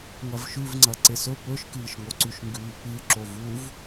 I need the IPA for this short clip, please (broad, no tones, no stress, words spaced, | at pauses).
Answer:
ŋɐvʃʉvŋ͡ǀɐ ǀesɵ pɵʃkɨːʃŋo ǀʉʃŋɡʉːpɨ ǁovuv